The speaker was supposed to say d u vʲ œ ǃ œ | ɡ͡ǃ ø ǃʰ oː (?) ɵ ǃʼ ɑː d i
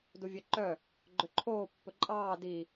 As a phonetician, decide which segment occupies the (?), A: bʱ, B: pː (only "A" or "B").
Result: B